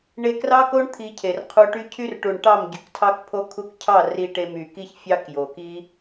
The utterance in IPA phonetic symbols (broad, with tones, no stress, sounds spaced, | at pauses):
ɳ e˧ k r ɑ˦ k o˦ ɳ t̪ʰ i˧ cʰ e˨ r qʰ u˧ ʈ y˦ cʰ y˦ r ʈ u˨ ɳ ʈ ɑ˦˨ m ɟ y˨ k tʰ ɑ˦ k pʰ o˦ kʰ u˧ k cʰ ɑ˦˨ r i˧ ʈ e˧ m y˨ k i˦ ç fʲ ɑ˦ k j o˨ k i˦